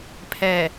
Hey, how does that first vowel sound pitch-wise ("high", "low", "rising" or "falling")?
low